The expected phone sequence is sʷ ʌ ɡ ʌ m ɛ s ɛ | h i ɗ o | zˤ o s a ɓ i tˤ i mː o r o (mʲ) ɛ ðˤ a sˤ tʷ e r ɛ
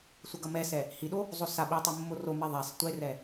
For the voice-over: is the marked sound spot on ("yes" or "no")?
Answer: no